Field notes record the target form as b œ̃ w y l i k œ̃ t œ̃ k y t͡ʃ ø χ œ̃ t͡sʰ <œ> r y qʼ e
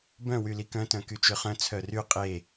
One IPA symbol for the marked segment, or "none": œ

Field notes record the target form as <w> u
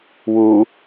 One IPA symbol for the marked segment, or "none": w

